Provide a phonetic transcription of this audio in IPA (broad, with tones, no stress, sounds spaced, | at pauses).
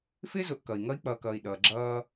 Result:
f ɪː˥ z ʊ˨ ʔ k ʌ˩ i̯ ŋ ʌ˥ i̯ k͡p ʌː˨ k ʌː˨ i̯ ɗ ʌː˩ ɡ͡ǁ ʌː˦